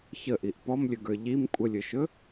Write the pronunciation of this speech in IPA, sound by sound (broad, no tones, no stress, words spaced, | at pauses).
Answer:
çəʔiʔ pɔmlʲɵɡə˞ ʎim kʷʼəlʲɵʃɵ